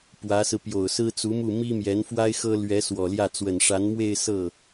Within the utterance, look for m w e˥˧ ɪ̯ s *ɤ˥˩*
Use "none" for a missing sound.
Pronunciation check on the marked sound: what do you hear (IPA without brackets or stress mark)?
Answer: ɤ˥˩